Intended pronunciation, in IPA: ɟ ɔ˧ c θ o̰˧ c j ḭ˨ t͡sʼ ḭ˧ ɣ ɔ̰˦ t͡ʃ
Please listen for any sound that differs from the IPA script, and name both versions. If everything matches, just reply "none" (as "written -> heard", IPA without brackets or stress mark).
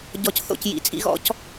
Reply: t͡ʃ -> c